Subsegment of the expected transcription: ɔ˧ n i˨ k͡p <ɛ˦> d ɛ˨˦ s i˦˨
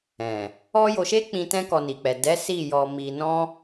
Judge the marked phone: incorrect: ɛ˨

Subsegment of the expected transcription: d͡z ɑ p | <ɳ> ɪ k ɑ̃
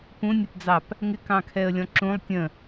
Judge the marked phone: incorrect: ŋ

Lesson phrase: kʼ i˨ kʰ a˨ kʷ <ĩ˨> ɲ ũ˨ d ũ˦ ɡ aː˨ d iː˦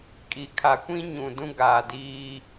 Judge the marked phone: incorrect: ĩ˦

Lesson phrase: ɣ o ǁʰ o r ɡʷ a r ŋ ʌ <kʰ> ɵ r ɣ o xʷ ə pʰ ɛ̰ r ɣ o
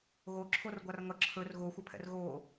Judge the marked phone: incorrect: ǁʰ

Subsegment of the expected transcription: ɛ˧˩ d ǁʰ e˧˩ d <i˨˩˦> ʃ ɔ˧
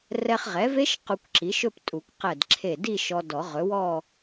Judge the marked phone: incorrect: i˥˧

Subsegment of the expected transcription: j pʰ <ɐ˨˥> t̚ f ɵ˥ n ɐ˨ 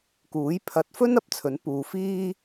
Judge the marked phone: correct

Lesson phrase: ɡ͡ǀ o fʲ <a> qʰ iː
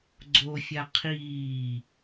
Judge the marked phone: correct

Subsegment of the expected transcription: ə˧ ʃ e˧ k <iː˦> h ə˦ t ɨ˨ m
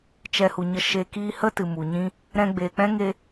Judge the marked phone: correct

